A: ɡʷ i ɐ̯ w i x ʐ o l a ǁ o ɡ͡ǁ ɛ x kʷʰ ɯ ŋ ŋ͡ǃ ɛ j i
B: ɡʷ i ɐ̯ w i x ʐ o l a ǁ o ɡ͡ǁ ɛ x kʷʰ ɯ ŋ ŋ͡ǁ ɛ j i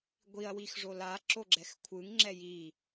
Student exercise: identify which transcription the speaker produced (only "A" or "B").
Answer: B